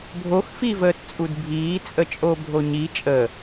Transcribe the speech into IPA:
bʱ o x f i v əː t t͡sʼ u d bʱ iː t͡sʼ ə t͡ʃʼ o bʱ o ɲ i t͡ʃʼ ə

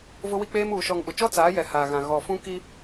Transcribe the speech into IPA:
v ʊ˦ w i˦ k͡p eː˦ m uː˨ ʃ ɔ˨ ŋ ɓ ʊ˨ t͡ʃ ɔ˦ t͡s aː˨˦ j ɛ˨ h a˨ ɣ ã˨ ɣ ɔ˨ f ũ˦ k i˦

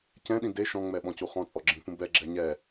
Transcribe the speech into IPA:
c ɛ̃ ɗ ĩ d e ʃ ɔ̃ ŋ͡m ɛ ɓ ɔ̃ c u χ ɔ̃ t͡sʼ ɔ ɡ͡ǁ ĩ p ũ b ɛ ɡ͡ǁ ɛ ɲ ɛ

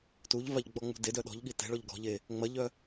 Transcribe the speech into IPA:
t u ʎ v a ʎ ɡ͡b ɔ ŋ͡m ṳ d e d œ ɗ ɔ̤ ʎ ɠ i t ɛ̤ ɭ ɔ ʎ ɡ ɔ̤ ʎ e | ŋ͡m ɐ ʎ œ

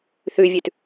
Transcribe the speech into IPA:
θ ʉ vʲ ʉ t

